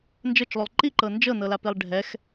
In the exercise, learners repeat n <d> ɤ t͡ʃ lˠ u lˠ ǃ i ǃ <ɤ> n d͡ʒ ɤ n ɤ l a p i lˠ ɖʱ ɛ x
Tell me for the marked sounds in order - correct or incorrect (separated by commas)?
incorrect, correct